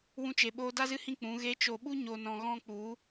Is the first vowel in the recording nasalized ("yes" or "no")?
yes